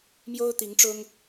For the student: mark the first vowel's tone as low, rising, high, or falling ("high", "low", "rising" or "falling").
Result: high